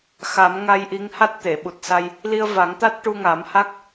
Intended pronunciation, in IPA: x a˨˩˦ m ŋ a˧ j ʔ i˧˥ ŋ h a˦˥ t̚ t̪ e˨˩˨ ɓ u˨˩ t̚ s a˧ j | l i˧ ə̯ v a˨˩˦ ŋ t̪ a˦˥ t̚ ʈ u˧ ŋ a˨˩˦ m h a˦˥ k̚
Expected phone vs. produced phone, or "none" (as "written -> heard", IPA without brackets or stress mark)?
none